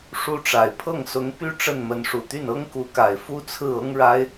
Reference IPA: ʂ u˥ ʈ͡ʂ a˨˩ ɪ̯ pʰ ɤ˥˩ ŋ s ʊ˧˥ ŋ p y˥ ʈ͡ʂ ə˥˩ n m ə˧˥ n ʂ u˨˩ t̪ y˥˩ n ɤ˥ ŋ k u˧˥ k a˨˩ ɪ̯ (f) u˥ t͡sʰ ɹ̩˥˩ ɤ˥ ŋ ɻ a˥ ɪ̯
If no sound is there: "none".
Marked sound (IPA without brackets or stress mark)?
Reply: f